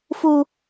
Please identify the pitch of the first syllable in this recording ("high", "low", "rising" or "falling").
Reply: high